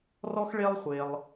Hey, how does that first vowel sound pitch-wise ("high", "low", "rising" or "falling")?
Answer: high